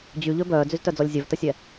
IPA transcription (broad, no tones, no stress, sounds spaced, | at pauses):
d͡ʑ y ʎ ø b œː d͡z y z t œ d͡z ɔ lʲ zʲ œ v t ə sʲ ɛ